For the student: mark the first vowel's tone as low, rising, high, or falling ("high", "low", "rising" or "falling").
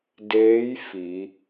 rising